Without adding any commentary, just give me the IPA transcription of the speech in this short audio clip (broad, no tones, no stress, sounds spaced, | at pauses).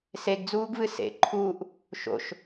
s e ɡ d͡z uː ɡ v ɨ s ḛ ǃʰ uː ʔ | ʃ o̰ ʃ